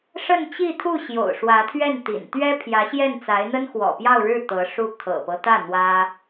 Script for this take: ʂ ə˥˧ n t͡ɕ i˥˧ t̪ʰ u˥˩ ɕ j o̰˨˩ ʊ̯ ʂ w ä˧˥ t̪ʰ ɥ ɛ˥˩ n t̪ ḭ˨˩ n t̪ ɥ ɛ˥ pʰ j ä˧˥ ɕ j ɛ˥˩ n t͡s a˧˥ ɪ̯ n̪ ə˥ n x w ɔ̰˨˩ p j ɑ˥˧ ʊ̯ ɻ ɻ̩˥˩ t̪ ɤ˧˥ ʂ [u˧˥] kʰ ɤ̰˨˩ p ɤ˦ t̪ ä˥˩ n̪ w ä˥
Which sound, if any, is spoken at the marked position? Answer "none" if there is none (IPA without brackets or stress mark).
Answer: u˥˩